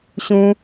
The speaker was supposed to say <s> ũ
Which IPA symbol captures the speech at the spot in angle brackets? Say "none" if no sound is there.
ɕ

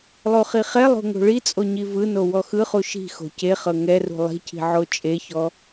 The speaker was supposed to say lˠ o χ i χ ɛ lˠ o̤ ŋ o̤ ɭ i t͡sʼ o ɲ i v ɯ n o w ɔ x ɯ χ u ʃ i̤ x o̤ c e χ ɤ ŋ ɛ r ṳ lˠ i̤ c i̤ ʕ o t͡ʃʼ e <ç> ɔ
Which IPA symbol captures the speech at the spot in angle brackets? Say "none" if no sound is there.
ç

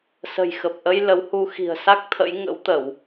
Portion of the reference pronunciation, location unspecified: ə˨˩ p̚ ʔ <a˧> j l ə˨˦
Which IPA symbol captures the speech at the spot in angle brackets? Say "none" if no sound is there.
ə˧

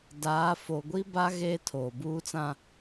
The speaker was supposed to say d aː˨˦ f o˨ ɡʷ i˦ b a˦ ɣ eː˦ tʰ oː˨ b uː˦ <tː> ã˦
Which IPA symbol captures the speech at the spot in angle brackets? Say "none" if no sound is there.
t͡s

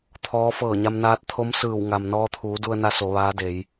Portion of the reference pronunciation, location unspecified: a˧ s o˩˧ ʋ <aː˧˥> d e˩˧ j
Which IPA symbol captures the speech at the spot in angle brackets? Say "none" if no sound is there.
aː˧˥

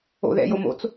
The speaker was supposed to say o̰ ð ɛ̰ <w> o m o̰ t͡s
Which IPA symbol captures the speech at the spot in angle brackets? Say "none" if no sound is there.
j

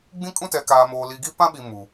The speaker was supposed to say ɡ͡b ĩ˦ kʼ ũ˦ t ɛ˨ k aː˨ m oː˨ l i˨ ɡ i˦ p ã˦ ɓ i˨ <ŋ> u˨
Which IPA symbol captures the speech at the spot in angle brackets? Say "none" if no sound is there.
m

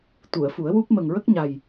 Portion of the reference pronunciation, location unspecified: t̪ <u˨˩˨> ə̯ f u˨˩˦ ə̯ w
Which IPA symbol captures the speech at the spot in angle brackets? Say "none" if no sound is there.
u˨˩˨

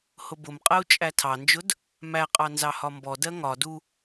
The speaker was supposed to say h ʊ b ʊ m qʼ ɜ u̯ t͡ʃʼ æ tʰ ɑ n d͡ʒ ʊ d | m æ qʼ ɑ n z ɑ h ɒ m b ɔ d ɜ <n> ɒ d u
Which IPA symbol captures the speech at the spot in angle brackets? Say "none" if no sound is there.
ŋ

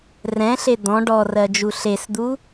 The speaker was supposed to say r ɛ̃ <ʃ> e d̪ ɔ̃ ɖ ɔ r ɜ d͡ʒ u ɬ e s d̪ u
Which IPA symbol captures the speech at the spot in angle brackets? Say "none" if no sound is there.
ɬ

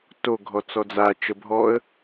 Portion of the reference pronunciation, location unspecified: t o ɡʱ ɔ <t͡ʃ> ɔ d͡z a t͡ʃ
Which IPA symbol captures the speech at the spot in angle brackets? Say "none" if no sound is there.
t͡s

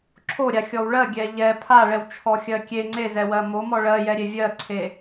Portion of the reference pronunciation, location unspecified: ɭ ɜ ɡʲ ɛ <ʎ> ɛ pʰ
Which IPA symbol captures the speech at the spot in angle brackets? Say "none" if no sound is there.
ʎ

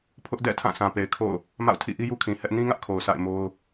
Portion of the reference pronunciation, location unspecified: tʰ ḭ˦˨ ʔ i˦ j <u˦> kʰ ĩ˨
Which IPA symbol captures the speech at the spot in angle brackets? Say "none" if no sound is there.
u˦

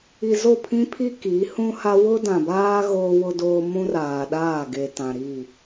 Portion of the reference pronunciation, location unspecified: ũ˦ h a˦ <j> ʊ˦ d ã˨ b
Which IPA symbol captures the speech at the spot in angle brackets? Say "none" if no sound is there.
w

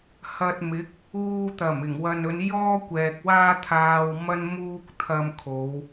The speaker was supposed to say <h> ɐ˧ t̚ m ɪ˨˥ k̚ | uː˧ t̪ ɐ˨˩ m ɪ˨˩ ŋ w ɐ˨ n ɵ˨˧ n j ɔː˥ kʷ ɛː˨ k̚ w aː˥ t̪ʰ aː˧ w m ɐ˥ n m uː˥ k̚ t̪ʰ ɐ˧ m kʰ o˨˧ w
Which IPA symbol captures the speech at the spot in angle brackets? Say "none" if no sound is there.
h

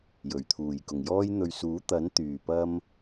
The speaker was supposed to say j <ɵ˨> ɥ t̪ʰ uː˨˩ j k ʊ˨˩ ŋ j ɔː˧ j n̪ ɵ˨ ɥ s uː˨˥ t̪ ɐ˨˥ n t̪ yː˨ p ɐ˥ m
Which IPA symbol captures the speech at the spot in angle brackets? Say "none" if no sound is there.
ɵ˨˩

